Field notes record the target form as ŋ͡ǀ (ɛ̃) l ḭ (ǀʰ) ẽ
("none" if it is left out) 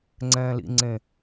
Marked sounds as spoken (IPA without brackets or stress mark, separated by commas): ɛ̃ː, ŋ͡ǀ